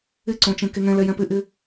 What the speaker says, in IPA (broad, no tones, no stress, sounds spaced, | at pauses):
ɪ ǀ õ t͡ʃ ẽ k e ŋ ɛ̃ l ɛ j ɛ̃ p ɪ ʔ ɪ